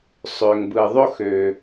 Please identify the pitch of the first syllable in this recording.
low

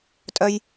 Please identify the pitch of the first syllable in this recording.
high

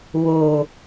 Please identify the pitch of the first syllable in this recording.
low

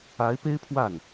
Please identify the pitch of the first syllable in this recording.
rising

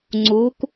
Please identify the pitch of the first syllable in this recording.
rising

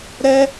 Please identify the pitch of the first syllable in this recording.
high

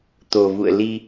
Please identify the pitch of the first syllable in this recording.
low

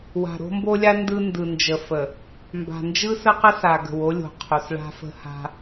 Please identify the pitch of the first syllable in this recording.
low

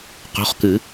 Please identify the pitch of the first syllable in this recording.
rising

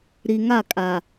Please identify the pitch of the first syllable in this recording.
low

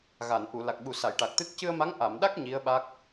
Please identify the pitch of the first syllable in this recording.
low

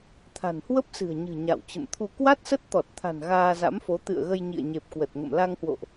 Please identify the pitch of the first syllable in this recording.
low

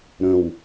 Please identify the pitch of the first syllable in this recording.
low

